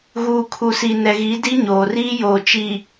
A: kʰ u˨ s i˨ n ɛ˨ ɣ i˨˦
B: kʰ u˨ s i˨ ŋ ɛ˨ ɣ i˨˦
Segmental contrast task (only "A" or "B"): A